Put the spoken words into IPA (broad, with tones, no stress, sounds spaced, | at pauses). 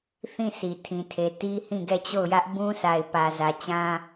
θ ĩ˦˨ s i˨ tʰ ĩ˨ tʰ e˨ t i˦ h ĩ˦˨ ɡ ɛ˦˨ t͡ɕ o˦˨ ʊ̯ j ä˦ ʔ b ũ˦ s a˨ ɪ̯ p ä˨ z ä˨ t͡ɕ ã˦